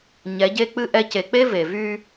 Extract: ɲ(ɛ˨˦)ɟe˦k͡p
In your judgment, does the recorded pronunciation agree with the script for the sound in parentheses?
yes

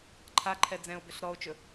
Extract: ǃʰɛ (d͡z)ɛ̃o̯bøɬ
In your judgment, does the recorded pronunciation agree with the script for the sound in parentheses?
yes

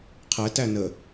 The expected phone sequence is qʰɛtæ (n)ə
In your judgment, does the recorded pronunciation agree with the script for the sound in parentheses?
yes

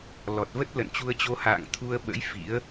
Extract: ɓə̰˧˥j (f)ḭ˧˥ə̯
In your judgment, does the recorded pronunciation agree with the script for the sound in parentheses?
yes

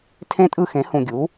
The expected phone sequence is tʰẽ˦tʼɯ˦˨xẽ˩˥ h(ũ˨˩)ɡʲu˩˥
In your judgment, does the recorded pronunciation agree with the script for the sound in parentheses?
yes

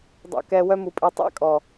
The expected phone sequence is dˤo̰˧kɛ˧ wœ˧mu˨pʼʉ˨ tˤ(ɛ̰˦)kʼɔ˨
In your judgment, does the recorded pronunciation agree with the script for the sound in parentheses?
yes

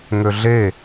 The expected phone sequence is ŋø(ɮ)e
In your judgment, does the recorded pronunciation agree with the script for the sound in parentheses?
yes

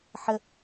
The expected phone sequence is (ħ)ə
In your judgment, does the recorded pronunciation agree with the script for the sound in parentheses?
yes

